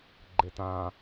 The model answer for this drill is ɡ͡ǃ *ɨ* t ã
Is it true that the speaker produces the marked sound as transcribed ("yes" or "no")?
no